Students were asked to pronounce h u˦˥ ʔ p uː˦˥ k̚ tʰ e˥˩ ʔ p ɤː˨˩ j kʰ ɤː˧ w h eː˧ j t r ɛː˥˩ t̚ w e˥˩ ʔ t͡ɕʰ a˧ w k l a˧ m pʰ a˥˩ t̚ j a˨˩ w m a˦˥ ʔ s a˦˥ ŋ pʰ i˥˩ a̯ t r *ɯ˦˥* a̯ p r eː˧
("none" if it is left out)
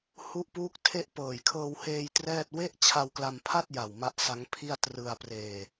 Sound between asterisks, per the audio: ɯ˧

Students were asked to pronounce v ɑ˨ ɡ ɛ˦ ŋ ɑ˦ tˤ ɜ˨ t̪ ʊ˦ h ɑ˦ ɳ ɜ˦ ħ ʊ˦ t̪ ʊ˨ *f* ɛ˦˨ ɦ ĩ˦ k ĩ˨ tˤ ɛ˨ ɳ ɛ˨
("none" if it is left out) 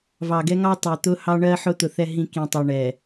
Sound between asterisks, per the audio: θ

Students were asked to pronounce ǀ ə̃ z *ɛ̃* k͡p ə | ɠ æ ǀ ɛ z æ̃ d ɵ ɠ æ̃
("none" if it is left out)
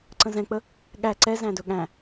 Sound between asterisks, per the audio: ɛ̃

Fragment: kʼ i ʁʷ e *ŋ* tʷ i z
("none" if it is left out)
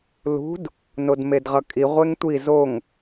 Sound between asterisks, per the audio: ŋ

